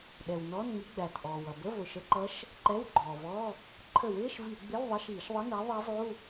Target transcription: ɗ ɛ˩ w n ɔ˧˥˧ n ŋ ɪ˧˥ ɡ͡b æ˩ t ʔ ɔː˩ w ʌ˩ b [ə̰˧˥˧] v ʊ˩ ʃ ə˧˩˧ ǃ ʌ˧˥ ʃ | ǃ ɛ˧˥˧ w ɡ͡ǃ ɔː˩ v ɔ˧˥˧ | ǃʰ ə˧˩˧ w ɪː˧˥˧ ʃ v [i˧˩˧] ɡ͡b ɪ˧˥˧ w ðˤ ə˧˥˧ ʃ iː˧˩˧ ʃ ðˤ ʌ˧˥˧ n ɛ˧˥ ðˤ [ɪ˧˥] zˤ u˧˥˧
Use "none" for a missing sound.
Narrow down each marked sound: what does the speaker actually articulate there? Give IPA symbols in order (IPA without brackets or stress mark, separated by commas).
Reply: ə˧˥˧, i˧˩˧, ɛ˧˥